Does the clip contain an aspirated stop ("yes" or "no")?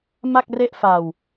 no